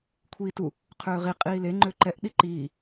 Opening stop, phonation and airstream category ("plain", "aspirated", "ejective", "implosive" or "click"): aspirated